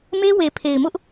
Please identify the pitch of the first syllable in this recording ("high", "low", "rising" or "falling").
high